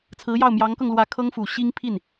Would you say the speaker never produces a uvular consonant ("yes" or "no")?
yes